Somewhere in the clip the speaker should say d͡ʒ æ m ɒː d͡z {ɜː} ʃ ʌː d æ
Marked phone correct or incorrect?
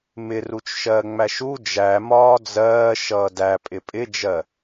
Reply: correct